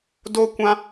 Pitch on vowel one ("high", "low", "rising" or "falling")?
high